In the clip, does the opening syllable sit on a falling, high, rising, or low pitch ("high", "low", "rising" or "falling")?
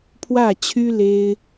falling